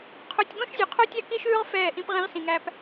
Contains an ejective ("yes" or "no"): no